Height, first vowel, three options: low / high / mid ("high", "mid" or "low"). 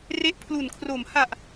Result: mid